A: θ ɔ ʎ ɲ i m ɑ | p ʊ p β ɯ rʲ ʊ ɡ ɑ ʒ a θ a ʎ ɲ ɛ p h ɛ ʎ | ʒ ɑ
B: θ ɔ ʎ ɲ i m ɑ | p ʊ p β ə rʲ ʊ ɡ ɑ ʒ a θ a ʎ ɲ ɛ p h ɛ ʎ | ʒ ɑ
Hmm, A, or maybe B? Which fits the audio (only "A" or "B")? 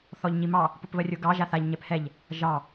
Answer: B